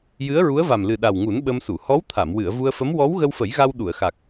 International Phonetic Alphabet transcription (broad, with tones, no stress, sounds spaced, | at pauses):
j ɨ˧˥ ə̯ ɹ u˧˥ ə̯ v a˨˩ m l ɨ˨˩ ɗ a˨˩ w ŋ u˨˩˦ n ɓ ə˧ m s u˨˩˨ h ɔ˧˥ w t̪ʰ a˨˩˨ m w ɨ˨˩˨ ə̯ v u˧ ə̯ f ə˧˥ m w ɔ˧˥ w ɣ ə˧ w f ə˨˩˦ j ɣ a˧ w ɗ u˨˩˨ ə̯ x a˨˩ k̚